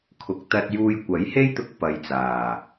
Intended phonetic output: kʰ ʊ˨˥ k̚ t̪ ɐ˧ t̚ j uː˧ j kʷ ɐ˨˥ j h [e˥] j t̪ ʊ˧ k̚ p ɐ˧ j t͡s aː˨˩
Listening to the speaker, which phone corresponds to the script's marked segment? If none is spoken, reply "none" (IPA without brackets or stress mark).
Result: e˥